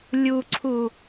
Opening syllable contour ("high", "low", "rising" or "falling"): low